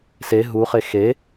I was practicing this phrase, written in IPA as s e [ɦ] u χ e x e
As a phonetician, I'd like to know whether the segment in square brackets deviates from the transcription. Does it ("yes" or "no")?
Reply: no